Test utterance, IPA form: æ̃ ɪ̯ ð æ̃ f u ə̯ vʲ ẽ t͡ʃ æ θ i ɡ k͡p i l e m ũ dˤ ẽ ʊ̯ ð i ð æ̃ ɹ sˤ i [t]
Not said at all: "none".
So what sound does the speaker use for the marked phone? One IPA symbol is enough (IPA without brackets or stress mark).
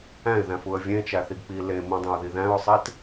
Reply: t